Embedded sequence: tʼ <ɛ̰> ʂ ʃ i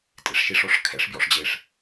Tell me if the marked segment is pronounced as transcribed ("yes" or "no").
no